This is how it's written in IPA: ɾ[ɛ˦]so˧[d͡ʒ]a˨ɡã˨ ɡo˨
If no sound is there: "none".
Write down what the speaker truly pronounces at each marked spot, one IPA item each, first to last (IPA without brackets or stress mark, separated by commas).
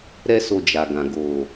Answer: ɛ˦, d͡ʒ